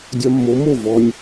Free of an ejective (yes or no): yes